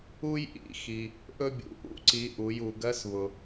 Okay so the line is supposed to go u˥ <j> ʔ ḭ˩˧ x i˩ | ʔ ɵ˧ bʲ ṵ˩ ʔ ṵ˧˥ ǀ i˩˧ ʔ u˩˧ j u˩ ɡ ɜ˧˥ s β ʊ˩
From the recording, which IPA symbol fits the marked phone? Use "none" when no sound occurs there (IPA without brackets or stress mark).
j